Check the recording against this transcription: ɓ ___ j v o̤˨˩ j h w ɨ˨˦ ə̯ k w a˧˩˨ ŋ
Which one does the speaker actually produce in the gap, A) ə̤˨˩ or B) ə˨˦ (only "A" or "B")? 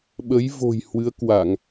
B